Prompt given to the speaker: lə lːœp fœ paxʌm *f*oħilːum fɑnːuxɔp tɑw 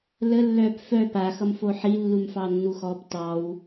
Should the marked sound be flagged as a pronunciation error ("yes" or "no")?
no